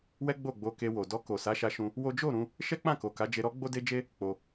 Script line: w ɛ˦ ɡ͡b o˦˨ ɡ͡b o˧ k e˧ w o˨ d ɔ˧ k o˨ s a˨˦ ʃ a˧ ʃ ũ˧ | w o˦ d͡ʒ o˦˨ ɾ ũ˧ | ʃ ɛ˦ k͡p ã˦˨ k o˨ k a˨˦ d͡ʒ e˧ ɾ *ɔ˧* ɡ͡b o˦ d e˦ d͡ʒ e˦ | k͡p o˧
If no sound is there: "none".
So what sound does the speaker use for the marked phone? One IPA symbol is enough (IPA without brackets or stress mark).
ɔ˦